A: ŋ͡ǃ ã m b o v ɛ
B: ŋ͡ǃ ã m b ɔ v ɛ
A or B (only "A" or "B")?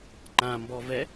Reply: B